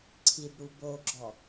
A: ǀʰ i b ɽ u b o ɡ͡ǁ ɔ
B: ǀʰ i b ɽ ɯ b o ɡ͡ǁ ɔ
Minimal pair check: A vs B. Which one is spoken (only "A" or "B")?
A